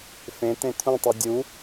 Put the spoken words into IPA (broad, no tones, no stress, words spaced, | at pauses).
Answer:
fẽ tẽt̪ʰũtˤu dʲu